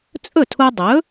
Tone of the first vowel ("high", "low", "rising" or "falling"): falling